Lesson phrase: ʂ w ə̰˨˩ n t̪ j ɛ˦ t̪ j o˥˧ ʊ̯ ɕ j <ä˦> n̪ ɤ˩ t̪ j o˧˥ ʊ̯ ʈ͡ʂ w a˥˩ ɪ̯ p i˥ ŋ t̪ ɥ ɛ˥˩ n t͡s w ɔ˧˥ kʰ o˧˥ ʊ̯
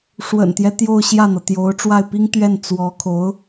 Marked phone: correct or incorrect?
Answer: incorrect